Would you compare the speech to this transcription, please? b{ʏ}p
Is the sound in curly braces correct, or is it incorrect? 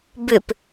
correct